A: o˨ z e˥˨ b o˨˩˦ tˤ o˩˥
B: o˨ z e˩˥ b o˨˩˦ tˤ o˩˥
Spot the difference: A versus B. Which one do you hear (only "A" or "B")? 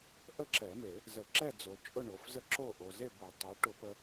A